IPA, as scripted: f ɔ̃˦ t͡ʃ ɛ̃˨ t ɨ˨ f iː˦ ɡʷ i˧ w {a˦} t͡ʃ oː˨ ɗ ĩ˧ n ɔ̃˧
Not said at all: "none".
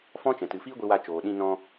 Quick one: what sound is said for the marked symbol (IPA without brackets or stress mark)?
a˧